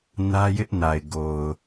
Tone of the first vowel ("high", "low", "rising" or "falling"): high